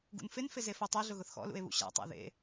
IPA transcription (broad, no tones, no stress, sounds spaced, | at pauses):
ɡ ṵ n f ɪ n f ɪ z e f o tˤ ɛ ɮ ʊ ɣ ʊ θ x ɔ̰ l ṵ e̯ β ṵ ɕ a̰ tˤ a̰ ð ḛ